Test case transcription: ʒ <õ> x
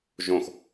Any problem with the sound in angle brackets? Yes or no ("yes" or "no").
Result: no